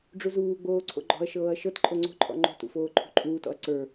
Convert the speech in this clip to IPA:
ɖ͡ʐ u z uː ɡ͡b oː ǀʰ o̰ ɡ͡ǃ ɔ̤ ɐ̯ ʃ ɤː ɐ̯ ʃ ɤ t ǃʼ o ŋ͡ǀ o̤ ǃʼ ɔ̰ ŋ͡ǃ o̤ t ṵ f oː ǃʰ ṳ ǃʼ uː t ɔ̰ ɐ̯ ǀ ə˞

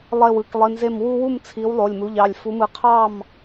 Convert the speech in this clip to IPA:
lˠ e˧˩ w ɯ˩˧˩ k lˠ i˩˧˩ n z e˧˩ m w u˦ w u˥˨ m t͡sʰ i˨˦ w lˠ o˩˧˩ lʲ m u˩˧˩ ʎ ɑ˩˧˩ lʲ f u˨˦ m ɯ˨˦ qʰ ɑ˥˨ m

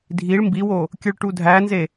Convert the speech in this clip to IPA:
dʱ i ɭ m b i w o | kʲ ɯ ɭ ʈ u dʱ æ n z e

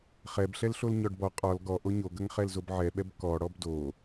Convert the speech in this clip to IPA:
χ ɛ b ɬ ɛ l ɬ o l ɲ ɔ ɖ b ɔ qʼ ɔ l ɡ ɔ ʔ o ɲ o ɡ ɐ ŋ χ ɛ l z o b ʕ ɛ ɓ ɛ b k ɔ ɽ ɔ b d o

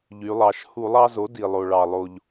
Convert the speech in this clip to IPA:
ʎ y˩˧ lˠ ɑ˩˧ ʃ h u˧˩˧ lˠ ɑ˦ z o˩˥ d i˩ lˠ o˩ ɭ ɑ˩ lˠ o˩ ʎ

